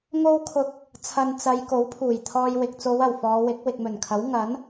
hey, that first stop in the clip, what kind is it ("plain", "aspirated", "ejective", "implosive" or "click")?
aspirated